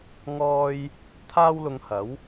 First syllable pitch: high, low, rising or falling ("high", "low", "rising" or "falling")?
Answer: high